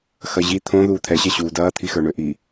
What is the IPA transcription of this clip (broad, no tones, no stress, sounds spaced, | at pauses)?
x ɐ ʑ i t̪ʰ õ ð uː t̪ʰ ɛ ɕ ɛ ɕ uː d ɐː t̪ʰ i x ə˞ ɳ ø ʔ i